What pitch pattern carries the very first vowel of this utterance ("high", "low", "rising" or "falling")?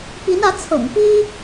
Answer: rising